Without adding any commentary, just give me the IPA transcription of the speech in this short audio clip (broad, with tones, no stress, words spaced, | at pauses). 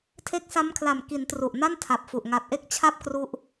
tʰe˦˥k̚sa˦˥mkʰla˨˩m ki˩˦n tru˨˩ʔna˥˩ntʰa˨˩p̚fu˨˩ʔ ŋa˨˩t̚ʔe˥˩k̚ t͡ɕʰa˥˩p̚kru˦˥ʔ